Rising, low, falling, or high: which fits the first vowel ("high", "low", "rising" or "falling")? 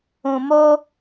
low